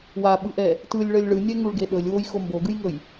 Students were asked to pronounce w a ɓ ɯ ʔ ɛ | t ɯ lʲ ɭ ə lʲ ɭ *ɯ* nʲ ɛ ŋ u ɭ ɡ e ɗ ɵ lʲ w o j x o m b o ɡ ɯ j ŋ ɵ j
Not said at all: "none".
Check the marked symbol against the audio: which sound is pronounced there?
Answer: ɯ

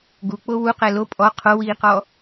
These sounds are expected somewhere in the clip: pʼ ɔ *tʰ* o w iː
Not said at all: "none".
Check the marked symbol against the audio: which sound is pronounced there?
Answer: qʰ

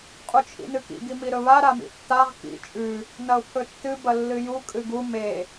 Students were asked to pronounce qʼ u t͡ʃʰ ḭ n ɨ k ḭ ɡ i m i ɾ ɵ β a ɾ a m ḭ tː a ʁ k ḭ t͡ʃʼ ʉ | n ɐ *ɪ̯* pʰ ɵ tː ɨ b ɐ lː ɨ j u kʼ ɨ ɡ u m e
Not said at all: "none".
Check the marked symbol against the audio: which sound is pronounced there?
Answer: ʊ̯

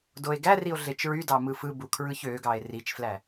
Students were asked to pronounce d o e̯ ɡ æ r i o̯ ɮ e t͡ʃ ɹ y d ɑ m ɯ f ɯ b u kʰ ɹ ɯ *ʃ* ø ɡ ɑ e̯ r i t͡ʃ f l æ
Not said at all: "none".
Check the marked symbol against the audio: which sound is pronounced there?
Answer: ç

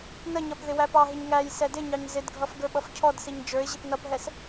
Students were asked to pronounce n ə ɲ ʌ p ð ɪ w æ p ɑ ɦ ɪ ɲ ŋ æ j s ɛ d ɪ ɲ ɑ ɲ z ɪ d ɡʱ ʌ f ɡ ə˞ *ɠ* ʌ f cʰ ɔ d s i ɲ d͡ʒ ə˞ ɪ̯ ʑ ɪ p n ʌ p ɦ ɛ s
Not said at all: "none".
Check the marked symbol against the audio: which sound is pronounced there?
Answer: ɓ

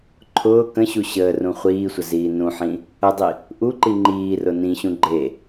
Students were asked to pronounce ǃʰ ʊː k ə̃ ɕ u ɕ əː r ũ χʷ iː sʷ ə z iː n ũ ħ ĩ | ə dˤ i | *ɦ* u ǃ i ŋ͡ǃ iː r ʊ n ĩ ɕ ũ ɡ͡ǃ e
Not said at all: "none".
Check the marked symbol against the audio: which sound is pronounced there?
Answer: ʔ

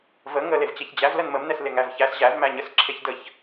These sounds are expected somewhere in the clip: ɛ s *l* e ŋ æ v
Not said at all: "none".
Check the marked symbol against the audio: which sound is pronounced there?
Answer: l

